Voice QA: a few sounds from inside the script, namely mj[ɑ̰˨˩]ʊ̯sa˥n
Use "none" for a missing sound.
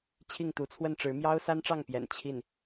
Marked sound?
ɑ˥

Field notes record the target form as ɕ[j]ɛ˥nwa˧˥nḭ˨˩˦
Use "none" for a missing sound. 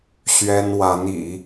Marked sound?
ɥ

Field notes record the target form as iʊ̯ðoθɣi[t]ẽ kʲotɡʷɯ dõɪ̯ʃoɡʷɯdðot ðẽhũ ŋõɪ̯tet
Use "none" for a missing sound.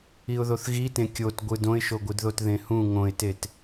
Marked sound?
t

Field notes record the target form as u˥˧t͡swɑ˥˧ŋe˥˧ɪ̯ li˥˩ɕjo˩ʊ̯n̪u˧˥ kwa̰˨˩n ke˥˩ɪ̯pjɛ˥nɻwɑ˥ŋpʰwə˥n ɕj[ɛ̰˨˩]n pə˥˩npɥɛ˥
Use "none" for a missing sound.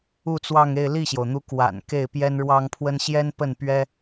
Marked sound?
ɛ˥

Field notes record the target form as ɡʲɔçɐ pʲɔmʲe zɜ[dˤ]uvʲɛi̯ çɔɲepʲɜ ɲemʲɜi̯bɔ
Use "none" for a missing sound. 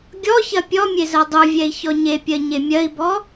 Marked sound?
dˤ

